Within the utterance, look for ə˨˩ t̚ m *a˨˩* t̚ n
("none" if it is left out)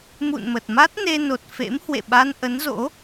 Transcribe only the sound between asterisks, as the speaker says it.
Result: a˦˥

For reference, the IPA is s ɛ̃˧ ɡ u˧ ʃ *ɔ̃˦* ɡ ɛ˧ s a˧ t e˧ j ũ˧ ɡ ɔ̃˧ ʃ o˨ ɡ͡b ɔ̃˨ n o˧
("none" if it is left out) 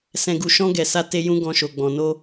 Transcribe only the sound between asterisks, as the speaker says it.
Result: ɔ̃˦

